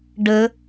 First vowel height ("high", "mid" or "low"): mid